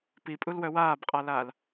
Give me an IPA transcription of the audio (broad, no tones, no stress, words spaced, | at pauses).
pipʼulwœ waːbqʼalaːl